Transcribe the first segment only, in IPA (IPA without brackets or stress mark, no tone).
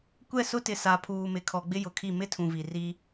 kʷ